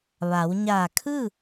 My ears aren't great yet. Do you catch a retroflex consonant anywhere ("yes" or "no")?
no